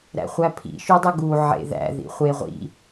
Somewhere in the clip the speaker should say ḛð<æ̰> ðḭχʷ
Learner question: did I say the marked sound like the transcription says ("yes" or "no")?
yes